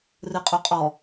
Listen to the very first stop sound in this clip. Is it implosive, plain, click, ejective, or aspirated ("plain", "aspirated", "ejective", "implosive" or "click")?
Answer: ejective